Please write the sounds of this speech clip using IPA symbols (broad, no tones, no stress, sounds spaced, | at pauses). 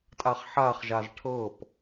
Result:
tʼ a χ ħ a χ ʒ a z ʈʰ ɤ p